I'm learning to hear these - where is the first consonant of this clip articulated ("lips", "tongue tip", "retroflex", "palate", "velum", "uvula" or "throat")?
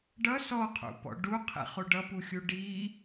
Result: retroflex